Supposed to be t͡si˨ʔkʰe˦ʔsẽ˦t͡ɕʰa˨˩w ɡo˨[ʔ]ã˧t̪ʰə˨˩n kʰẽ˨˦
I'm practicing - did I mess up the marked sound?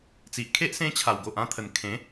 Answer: no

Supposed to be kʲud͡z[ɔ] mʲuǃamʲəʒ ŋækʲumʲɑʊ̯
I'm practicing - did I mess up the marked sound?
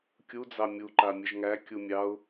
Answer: yes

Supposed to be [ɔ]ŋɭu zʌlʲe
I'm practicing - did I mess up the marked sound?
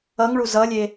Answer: yes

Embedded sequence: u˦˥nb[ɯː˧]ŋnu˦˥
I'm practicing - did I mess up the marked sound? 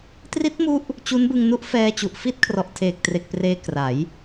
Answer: yes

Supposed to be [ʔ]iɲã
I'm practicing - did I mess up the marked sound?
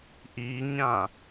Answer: no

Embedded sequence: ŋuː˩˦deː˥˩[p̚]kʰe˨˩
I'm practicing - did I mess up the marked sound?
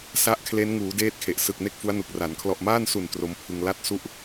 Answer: yes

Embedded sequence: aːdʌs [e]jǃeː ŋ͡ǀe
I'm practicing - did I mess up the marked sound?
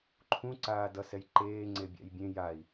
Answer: yes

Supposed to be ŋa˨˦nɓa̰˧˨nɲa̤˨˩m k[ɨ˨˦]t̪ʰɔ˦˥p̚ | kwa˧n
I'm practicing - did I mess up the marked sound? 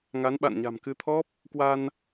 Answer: no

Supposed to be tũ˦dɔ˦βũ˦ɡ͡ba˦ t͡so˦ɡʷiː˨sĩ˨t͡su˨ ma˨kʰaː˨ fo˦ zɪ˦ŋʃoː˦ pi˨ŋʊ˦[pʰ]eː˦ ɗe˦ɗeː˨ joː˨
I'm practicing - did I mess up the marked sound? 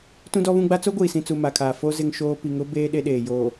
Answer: yes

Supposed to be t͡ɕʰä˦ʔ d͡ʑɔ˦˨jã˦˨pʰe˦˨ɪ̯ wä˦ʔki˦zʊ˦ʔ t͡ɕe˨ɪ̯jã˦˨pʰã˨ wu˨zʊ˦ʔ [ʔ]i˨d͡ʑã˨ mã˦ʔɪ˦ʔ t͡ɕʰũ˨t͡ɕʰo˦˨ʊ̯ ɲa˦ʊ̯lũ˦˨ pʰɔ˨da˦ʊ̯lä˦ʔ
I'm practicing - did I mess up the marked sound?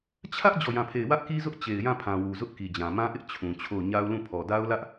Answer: yes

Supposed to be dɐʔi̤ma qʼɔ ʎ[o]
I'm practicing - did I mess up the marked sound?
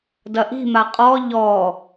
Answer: yes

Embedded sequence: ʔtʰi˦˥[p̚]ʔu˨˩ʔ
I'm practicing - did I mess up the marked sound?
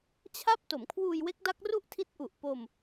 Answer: yes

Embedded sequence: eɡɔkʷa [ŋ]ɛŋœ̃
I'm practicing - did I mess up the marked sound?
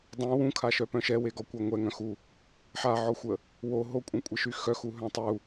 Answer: yes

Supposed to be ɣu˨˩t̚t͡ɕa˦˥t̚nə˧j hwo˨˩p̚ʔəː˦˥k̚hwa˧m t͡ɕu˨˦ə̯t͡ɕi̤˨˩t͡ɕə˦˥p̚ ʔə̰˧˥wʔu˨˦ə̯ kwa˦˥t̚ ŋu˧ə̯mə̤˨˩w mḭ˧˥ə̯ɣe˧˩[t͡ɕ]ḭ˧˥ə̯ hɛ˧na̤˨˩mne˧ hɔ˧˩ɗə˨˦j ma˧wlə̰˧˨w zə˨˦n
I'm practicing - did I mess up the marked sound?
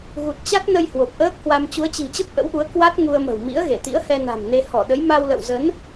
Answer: yes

